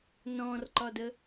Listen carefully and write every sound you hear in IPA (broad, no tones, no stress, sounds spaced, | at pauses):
n ɔ̃ r ǃ ɒ d ə